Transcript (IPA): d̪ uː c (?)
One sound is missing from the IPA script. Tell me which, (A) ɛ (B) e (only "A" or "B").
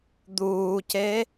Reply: B